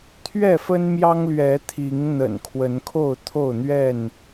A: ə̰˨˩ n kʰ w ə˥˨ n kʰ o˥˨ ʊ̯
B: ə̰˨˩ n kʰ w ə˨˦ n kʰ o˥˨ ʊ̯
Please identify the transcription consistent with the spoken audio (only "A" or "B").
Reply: B